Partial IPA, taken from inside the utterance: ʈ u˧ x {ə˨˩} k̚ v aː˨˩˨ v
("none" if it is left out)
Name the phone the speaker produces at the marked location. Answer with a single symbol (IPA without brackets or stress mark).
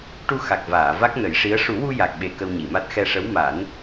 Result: a˨˩